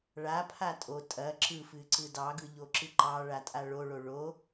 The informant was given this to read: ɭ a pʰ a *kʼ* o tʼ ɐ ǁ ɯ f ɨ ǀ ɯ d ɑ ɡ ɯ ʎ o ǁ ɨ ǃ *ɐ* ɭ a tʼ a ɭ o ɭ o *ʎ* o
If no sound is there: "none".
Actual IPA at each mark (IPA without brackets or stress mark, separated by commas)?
tʼ, ɑ, ɭ